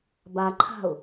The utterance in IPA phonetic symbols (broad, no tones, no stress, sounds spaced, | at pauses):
b a ǃʰ a̤ ʊ̯